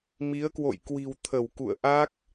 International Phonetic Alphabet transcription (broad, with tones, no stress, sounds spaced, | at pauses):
m i˨˦ ə̯ k w o̰˧˨ j k w i̤˨˩ w t̪ʰ ə˧˩ w k ṵ˧˨ ə̯ ʔ a˦˥ k̚